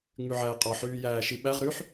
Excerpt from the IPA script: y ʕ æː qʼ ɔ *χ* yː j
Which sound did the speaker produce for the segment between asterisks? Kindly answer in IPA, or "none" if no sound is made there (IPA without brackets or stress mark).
ħ